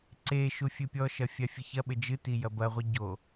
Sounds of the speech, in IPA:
ǀeʃu fʲɨpʲɔʃɐ fʲafʲɨçɐɓɘ d͡ʒɨti jɐbɐʁʷi ɟo

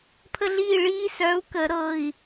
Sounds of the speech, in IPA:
pʰə˦ɮiː˥˨ ɭiː˦sœ˨˥u̯kə˨˩˦ɾɤ˩˧˩i̯

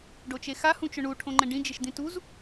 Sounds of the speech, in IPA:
ɖot͡ʃexa hũt͡ʃʊɳu ʈʰõŋ͡ǃɛ̃ɖĩ d͡ʒɪʃd̪ĩtuz

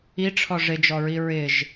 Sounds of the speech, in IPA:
iʈ͡ʂʰɔ ʐɪd͡ʒɔɹi ɹɪʒ

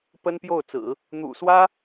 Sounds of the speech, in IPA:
pə˥npjo˥˩ʊ̯t͡sɹ̩˨˩˦ | n̪ṵ˨˩swä˥

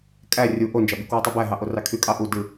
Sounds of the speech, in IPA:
kʼæ rʲu ʔond͡ʒɑbi kwutˤybæɦɑ ʔorɑkʰykʼɑ ʔu dɯ

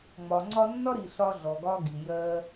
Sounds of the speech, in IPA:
ŋ͡mɒ˨ŋ͡ǀɒ˧nːɒ˦ɾi˨ ɬɒ˧ɮɔ˨ɡɒ˧ɡi˨ jɜ˧

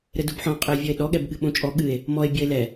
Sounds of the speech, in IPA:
ɾɘdubħɔ̃ qʼɘe̯vʲɔe̯ɗɔ ɠɛbɠɨɓõt͡ʃʼɔ ɠɨe̯ | mɔe̯ bʲɔe̯lɛ

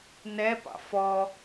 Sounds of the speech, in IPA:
nɛpɑ̰ fɔ

